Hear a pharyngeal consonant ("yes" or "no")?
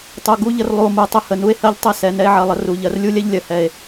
yes